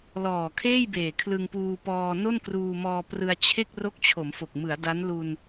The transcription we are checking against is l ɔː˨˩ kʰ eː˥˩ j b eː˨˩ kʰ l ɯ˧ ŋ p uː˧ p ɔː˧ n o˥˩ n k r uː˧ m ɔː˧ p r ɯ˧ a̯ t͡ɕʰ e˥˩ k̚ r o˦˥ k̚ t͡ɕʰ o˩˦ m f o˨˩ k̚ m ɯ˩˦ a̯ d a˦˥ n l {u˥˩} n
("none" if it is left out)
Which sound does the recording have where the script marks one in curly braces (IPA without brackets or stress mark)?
u˧